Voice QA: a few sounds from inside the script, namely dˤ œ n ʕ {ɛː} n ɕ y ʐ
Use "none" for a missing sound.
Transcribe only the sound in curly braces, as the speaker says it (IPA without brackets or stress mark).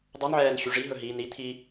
ɛː